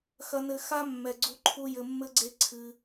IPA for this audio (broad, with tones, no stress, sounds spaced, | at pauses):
x ɐ˧ n ɘ˧ x a˦ mː ɛ˨ ɡ͡ǀ u˧ ǃʰ u˧ j ɘ˨ mː ɘ˧ ɡ͡ǀ e˧ ǀʰ ɨ˧